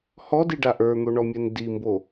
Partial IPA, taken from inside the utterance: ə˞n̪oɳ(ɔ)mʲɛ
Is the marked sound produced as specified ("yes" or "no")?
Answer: yes